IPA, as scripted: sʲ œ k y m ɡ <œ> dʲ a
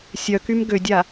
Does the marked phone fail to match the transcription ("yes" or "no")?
yes